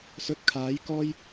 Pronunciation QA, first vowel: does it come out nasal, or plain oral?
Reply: oral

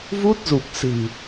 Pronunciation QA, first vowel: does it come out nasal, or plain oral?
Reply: oral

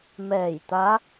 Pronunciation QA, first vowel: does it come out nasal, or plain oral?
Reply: oral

